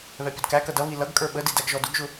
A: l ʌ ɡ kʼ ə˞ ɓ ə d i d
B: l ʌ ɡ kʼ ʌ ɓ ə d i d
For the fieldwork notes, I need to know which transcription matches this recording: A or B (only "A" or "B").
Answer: A